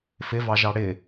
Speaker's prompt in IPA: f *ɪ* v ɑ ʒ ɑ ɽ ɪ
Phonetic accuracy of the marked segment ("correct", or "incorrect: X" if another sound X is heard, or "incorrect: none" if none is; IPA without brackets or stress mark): correct